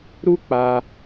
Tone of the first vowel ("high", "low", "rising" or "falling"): high